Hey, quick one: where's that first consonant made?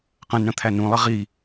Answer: uvula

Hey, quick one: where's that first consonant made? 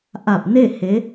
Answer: throat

